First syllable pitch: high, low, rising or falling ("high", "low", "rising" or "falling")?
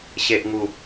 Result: low